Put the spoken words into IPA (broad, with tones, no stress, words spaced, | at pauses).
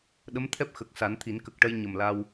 ɗə˧˥mt̪ʰɛ˦˥p̚ xə˨˩k̚ sa˨˩˦nt̪ʰi˨˩˦n kə˨˩k̚ʈə˧j ɲə˨˩m la˧w